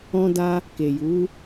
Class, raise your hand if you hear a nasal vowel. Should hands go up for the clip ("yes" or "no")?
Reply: yes